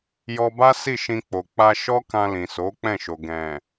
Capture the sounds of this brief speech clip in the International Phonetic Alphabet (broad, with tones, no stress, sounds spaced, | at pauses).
j ɔ˧ b a˦ s i˦˨ ʃ ĩ˧ k͡p o˨ k͡p a˧ ʃ ɔ˦ k ã˧ l ĩ˨ s o˨˦ k͡p ɛ̃˦˨ ʃ o˨ ɡ ɛ̃˨